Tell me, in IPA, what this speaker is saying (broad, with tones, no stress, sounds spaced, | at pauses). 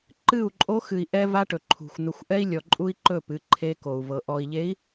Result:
ǃ ɨ˦˨ u̯ ǃʼ o˦ x ɨ˨ i̯ ʔ ɛ˦ v a˦ ʈ ɵ˨ ǃʰ ṳ˨ xʷ n̪ ɵ˨ xʷ ʔ ɛ˦ i̯ lʲ ɔ˨ ǃʼ u˦ i̯ ǃ ɵ˦˨ p ɨ˨˦ ǃʰ e˦ k o˨ u̯ v ɤ˨ ʔ ɔ˨ i̯ ʎ e˨˦ i̯